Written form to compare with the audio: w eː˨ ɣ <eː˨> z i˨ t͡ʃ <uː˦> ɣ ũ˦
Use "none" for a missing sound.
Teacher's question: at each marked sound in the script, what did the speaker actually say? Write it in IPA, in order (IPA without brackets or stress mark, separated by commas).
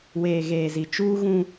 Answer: eː˨, uː˦